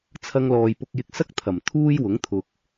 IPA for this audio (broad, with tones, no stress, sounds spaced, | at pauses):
t͡sʰ ɐ˧ ŋ l ɔː˨ j p ʊ˧ k̚ j ɪ˧ k̚ s ɐ˥ k̚ t̪ʰ ɐ˨˩ m t̪ʰ uː˥ j w ʊ˨˥ ŋ t̪ʰ ʊ˨ k̚